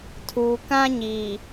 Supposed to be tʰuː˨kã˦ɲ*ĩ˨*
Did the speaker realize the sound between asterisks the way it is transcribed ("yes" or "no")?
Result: no